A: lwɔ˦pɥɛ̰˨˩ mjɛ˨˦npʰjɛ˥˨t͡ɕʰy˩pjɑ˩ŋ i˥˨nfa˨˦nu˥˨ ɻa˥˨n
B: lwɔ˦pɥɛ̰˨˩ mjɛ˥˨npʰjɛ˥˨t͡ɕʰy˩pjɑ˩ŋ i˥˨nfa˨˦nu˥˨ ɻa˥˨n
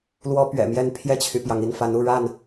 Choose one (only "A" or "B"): B